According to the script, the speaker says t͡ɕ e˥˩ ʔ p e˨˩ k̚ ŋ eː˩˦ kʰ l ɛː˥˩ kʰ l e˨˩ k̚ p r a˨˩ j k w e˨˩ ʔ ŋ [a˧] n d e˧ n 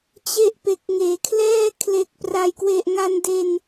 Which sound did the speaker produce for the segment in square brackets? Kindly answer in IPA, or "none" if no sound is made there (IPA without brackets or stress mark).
a˧